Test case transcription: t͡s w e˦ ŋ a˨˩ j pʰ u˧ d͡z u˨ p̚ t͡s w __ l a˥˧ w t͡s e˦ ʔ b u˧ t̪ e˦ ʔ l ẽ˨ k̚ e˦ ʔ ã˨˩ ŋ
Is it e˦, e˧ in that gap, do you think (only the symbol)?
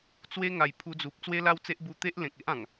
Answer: e˦